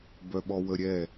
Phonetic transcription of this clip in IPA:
b œ ɓ ɔ w ə ɾʲ ɛ

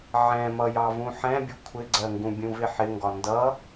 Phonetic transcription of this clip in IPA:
ʕ ɛ̃ m ʌ j ɑ v ũ ħ ɛ̃ bʲ ʊ kʷʰ ɪ ɡ͡ǀ ɜ ŋ ɡ ũ bʲ ũ v ɪ ħ ɪ ŋ ɡ ɒ n d ʌ

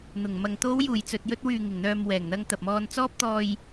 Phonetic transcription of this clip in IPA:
n̪ ʊ˨˩ ŋ m ɐ˨ ŋ t̪ o˨˧ w j uː˨˩ j t͡s ɵ˨ t̚ j ɵ˧ t̚ w yː˨ ŋ ɪ˨˩ ŋ n̪ œː˨ m w ɛː˨˩ ŋ n̪ ɐ˧ ŋ t̪ ɐ˨ p̚ m ɔː˧ n t͡s ɔː˧ p̚ t̪ ɔː˨ j

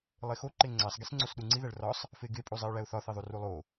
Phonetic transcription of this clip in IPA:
lˠ e x o ǃ e ŋ͡ǀ æ sˤ ɡ i s ŋ͡ǀ o s ɗ u ŋ͡ǀ i ð æ ɭ r ɒ sˤ | f e ɡ e pʼ u zˤ i ʊ̯ ɭ æ ʊ̯ θ ɒ θ i ðˤ u r u lˠ o

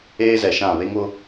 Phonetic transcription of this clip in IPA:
eː˦ z ɛ˨ ʃ ã˦˨ β e˦ ŋ ʊ˦

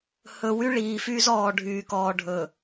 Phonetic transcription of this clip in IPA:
h ɵ˨ w y˦ ɭ iː˨ f y˦ z ɔː˨ ɖʱ yː˨ k ɔː˨ ɖʱ ɵ˨

